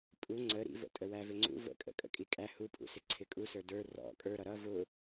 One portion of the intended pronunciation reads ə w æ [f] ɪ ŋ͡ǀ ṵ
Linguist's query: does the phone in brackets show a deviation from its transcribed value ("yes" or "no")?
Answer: yes